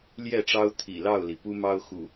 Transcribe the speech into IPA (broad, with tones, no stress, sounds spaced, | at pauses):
l j ɛ˥˨ ʈ͡ʂ ɑ˦ ʊ̯ t̪ʰ ḭ˨˩ l ɑ˥˨ ʊ̯ l i˩ p u˦ m ɑ˦ ʊ̯ x ṵ˨˩